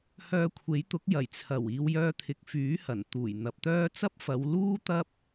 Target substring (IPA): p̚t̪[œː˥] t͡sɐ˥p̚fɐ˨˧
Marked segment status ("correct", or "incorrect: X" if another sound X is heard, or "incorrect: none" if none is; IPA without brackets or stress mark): correct